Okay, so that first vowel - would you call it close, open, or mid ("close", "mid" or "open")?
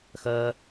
open